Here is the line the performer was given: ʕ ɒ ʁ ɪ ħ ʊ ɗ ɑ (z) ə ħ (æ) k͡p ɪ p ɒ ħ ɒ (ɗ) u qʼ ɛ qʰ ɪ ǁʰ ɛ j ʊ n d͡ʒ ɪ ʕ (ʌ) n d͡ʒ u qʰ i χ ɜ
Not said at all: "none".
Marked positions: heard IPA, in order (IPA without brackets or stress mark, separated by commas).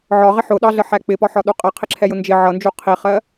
ɮ, æ, ɗ, ʌ